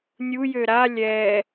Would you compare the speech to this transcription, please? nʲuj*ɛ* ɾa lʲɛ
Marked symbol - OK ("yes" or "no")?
no